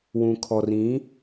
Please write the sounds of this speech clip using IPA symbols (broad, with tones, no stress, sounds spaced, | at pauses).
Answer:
w ũ˨ kʰ ɔ˨ r ĩ˨˦